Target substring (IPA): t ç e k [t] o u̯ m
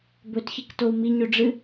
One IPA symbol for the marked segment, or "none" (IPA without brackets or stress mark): t